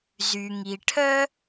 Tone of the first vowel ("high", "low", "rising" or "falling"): low